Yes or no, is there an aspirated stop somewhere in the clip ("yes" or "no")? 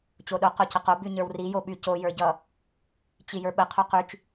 yes